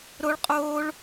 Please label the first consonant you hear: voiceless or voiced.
voiced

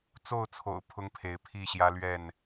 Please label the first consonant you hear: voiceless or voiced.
voiceless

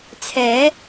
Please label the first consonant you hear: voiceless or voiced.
voiceless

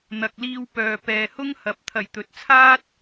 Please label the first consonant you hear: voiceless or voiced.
voiced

